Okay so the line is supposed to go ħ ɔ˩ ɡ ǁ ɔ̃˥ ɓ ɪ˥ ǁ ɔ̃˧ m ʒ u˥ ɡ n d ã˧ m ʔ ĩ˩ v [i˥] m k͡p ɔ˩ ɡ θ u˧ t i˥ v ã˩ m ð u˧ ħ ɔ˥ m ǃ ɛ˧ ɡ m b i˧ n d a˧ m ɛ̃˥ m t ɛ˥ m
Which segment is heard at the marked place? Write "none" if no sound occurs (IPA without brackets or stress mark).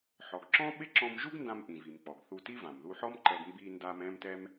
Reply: i˩